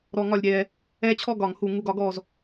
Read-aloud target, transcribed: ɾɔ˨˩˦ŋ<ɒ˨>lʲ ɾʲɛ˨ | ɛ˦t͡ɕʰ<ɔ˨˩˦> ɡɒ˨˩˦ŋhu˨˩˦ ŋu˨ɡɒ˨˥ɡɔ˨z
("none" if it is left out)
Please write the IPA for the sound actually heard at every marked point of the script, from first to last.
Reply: ɒ˨, ɔ˥˩

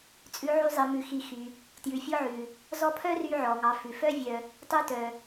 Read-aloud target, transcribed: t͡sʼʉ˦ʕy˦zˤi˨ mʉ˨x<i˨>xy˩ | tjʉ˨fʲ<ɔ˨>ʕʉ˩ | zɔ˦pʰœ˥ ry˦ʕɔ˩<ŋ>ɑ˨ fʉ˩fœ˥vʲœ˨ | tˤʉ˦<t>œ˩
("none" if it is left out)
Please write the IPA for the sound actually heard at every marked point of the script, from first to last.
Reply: i˨, ɔ˥, ŋ, t

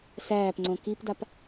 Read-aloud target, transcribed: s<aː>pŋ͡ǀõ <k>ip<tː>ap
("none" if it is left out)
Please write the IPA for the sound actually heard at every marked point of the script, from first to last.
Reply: æː, k, d

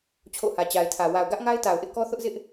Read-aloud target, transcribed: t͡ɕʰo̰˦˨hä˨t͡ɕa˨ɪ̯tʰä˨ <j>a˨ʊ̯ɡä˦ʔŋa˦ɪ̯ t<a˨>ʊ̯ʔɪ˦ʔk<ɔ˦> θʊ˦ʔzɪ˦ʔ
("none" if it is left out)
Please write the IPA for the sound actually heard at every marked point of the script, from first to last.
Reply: w, a˨, ɔ˦

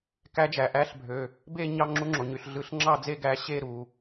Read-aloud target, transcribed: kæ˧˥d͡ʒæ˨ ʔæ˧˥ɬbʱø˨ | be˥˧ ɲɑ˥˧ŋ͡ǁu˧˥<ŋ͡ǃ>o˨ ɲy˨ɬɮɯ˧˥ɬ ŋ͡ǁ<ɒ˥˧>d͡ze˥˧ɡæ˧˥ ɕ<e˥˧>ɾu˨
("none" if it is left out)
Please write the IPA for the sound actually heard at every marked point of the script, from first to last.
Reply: ŋ͡ǁ, ɑ˥˧, e˥˧

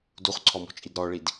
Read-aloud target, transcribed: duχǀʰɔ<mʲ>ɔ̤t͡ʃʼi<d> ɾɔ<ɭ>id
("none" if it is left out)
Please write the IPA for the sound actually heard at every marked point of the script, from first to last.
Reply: m, d, ɭ

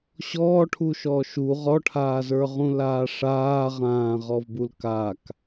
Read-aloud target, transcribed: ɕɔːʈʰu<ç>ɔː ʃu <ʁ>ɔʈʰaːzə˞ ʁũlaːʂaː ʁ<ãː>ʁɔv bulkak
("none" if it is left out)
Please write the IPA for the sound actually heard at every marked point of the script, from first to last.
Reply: ʃ, ʁ, ãː

